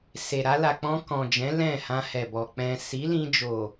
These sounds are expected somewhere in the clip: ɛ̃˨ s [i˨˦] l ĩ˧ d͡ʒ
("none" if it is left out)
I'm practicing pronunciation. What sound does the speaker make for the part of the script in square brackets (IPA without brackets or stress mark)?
i˨˦